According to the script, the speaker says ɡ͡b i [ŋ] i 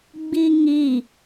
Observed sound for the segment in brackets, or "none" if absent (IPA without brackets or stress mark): ŋ